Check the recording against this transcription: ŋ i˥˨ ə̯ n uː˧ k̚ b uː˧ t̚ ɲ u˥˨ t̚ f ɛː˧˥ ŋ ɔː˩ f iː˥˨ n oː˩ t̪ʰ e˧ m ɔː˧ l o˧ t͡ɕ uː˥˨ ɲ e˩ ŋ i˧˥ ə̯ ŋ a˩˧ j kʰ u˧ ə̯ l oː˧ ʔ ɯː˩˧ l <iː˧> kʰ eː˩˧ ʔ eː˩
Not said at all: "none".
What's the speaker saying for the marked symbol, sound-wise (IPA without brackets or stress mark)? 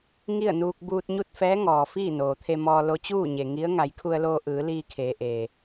iː˧